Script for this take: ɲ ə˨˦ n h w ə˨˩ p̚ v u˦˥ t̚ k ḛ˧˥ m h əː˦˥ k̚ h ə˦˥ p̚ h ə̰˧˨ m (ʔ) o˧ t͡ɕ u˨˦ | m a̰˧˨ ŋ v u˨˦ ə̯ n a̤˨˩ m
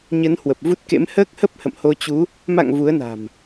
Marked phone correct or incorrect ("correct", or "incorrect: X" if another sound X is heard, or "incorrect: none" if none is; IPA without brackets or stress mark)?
incorrect: h